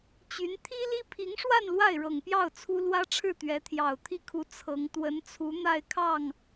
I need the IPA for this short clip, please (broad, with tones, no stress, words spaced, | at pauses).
t͡ɕy˧˥n t̪ʰi˥li˥ pʰi˧˥ŋʂwa˥˧n lwa˥˩ɪ̯ɻɤ˨˩ŋpjɑ˥˩ʊ̯ t͡sʰu˥ lwä˥ʈ͡ʂʰɻ̩˥˩ t̪ɥɛ˧˥t̪ʰjɑ˨˩ʊ̯ t̪ʰi˥˩kʰu˧˥ t͡sʰɤ˧˥ŋ t̪wə˧˥nt͡sʰu˧˥ n̪a˥˧ɪ̯kʰɑ˥˩ŋ